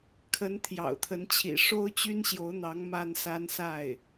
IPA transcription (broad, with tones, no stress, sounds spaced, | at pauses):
kʰ ə˧˥ n t̪ʰ j ɑ̰˨˩ ʊ̯ t̪ʰ ə˧˥ n t͡ɕʰ ḭ˨˩ ʂ o˥ ʊ̯ t͡ɕ y˥ n ɕ j o˧˥ ʊ̯ n̪ ɑ˧˥ ŋ m a˥ n s a˥ n s a˥˩ ɪ̯